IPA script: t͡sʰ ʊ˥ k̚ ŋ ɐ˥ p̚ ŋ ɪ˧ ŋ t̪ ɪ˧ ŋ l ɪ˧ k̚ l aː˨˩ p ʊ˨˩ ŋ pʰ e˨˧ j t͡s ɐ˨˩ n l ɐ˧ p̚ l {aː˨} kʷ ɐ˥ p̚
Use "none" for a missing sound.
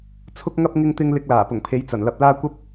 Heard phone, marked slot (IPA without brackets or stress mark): aː˥